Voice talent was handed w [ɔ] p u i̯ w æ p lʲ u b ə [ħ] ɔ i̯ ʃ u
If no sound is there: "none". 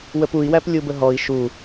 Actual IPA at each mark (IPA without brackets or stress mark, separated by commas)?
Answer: ə, ɦ